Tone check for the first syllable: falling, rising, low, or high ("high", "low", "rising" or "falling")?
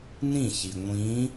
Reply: falling